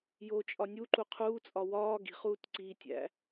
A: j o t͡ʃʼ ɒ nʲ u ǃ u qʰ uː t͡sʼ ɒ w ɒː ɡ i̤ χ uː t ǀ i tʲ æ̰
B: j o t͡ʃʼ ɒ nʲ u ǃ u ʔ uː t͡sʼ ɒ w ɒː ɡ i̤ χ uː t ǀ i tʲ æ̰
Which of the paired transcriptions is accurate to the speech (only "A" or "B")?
A